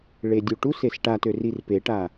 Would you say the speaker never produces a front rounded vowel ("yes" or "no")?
no